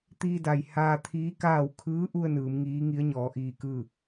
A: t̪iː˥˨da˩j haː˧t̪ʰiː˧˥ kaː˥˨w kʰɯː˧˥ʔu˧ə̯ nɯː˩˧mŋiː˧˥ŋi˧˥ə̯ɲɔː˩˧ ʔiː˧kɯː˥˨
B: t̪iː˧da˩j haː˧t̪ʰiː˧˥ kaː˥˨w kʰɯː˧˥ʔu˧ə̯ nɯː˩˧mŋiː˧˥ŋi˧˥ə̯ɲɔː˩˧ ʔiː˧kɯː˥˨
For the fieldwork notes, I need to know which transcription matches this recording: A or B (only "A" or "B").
B